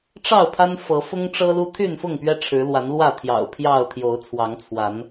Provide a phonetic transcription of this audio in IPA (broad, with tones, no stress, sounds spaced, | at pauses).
ʈ͡ʂ ɑ˥˨ ʊ̯ pʰ a˦ n f ɤ˨˦ f ʊ˦ ŋ ʈ͡ʂ ɤ˦ l u˦ t̪ʰ y˥˨ n f ʊ˥˨ ŋ p ɥ ɛ˦ ʈ͡ʂʰ ɻ̩˨˦ l w a˨˦ n l w ä˥˨ t̪ʰ j ɑ̰˨˩ ʊ̯ pʰ j ɑ˥˨ ʊ̯ t̪ʰ j o˨˦ ʊ̯ t͡sʰ w ɑ˨˦ ŋ t͡sʰ w a˨˦ n